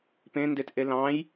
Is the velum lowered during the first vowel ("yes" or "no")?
yes